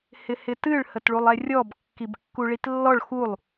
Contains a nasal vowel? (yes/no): no